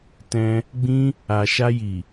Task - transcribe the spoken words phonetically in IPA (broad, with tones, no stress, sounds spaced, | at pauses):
t ɛ̃˧ | ɡ͡b ĩ˧ | a˨ ʃ a˧ j i˨